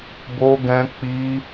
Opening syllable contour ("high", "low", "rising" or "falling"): high